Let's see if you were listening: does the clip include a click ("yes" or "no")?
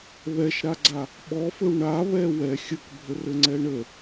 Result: yes